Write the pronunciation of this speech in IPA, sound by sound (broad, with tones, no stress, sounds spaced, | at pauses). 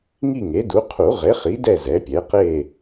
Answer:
ŋ i˥˨ ŋ e˩˥ d u˩˥ qʰ u˨˩˦ ʁ e˩˥ χ i˩˥ d ɛ˥˨ z ɛ˩˥ pʲ ɛ˩˥ q e˥˨